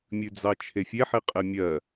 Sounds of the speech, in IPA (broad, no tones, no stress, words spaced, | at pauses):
mʲʉd͡zɑt͡ʃʰefʲe ħiqʼemʲɜ